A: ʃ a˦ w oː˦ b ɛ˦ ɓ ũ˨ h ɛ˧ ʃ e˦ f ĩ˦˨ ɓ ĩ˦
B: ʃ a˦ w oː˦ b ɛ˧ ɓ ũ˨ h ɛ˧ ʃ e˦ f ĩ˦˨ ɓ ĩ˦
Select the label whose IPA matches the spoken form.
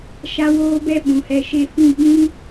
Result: A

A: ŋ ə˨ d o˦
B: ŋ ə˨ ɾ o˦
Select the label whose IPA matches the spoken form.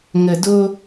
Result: A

